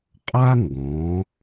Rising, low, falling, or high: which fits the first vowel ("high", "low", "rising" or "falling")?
high